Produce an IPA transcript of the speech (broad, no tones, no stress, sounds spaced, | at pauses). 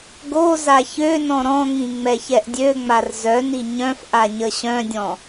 ɡ o z a ç ø n ɔ̃ ɾ ɔ̃ ŋ ĩ ŋ͡m ɛ ç ɛ ʔ dʲ ø ŋ͡m a r z œ n i ɲ œ̃ f ʔ a ɲ ə ɕ œ̃ dʲ ɔ̃